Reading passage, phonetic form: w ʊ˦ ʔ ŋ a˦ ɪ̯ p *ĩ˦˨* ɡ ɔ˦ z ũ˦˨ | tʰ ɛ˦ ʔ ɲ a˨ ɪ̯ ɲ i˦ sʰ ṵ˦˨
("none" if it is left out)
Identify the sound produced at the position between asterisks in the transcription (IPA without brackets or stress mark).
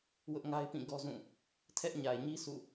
ĩ˦˨